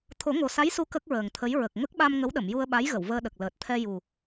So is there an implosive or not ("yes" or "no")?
yes